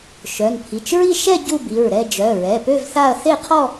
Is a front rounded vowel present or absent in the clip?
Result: present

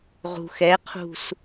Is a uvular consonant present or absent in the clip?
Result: present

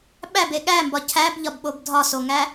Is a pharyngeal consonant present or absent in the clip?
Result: absent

